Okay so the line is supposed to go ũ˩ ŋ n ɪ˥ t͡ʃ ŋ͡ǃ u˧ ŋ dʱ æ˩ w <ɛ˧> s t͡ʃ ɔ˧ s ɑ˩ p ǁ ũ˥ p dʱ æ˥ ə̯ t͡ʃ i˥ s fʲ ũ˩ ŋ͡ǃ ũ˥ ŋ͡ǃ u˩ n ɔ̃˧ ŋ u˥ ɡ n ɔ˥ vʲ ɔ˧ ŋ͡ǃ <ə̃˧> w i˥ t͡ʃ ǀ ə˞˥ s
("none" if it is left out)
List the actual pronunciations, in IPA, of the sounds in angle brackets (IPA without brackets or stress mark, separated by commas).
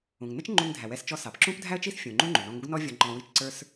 ɛ˧, ɔ̃˧